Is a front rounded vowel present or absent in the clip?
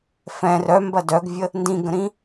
present